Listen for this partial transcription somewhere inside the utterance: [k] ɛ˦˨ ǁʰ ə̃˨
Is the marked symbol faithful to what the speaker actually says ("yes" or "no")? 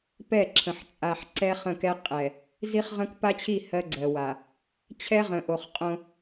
no